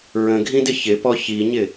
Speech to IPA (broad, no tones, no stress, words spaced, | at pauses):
ɹə̃ɡʱĩdɪ çɪpɔ çiɲɪ